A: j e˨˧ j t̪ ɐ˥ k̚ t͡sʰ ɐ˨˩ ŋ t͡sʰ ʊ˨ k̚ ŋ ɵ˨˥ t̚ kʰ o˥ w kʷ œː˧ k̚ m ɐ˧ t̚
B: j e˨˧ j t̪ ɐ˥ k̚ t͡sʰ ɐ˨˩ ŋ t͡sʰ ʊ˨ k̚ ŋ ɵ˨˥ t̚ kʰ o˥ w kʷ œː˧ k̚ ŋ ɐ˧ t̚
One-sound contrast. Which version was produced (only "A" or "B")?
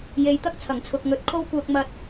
A